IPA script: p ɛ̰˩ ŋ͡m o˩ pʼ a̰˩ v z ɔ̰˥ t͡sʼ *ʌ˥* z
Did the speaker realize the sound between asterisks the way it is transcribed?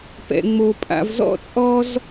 no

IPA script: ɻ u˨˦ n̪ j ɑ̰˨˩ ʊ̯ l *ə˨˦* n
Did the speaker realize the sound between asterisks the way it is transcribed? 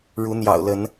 yes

